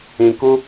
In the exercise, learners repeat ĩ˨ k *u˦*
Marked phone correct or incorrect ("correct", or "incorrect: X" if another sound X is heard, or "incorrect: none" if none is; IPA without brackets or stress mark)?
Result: correct